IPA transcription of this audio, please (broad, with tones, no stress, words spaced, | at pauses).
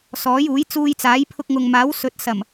sɔː˨˥juː˨˥jt͡suː˧j t͡saː˨˥jpʰʊ˧k̚ŋʊ˨ŋmaː˨˥w sɵ˨˥t̚ sɐ˨˩m